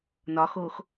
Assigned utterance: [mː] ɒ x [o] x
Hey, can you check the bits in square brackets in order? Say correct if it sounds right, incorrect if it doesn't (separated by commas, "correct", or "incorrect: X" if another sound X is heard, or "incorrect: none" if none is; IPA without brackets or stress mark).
incorrect: n, correct